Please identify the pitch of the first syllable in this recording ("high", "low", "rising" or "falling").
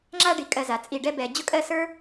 falling